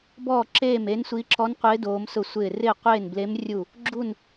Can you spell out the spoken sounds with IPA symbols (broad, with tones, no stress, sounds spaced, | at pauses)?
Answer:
b ɔː˥˨ ǁ eː˥˨ m e˧˥ n sʷ i˧˥ ǁ ɔ˧˥ n qʷ ɪː˧˥ d oː˧˥ m s ʊ˥˨ sʷ ɪː˥˨ r ɪː˥˨ qʷ eː˥˨ n b l e˧˥ m rʲ u˥˨ | ɡ͡ǁ u˥˨ n